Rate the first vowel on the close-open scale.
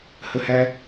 mid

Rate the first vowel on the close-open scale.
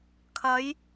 open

